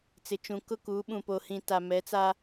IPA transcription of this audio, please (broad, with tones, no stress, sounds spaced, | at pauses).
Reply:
t͡s ɪ˨ t͡ʃ ũ˨ k ʊ˦ k uː˨˦ ɓ ũ˨ p o˨ h ĩ˨ t a˨ m ɛ˨˦ t͡s a˦